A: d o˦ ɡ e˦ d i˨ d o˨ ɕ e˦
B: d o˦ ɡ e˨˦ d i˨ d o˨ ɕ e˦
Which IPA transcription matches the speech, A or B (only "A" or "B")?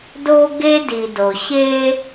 A